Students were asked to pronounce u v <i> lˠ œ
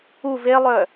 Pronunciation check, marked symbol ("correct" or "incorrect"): incorrect